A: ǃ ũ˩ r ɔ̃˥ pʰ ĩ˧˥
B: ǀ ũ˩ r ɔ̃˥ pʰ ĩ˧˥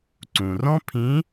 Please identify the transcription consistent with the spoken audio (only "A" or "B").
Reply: B